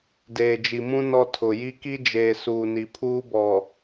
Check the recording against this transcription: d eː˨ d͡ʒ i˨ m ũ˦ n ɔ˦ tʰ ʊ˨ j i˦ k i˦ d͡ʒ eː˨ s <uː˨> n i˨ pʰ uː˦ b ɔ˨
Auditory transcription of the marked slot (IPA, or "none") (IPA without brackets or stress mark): uː˨